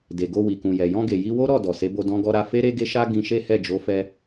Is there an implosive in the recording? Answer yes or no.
no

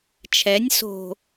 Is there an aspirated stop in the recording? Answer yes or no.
yes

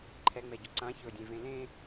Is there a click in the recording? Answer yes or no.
yes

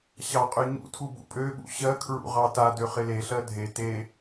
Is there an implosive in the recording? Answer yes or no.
yes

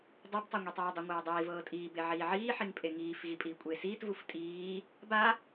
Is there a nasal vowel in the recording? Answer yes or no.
no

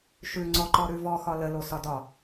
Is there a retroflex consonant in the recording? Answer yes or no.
no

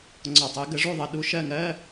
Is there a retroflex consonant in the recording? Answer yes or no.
yes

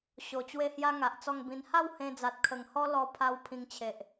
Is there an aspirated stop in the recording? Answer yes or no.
yes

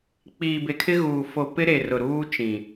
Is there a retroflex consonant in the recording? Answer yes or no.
no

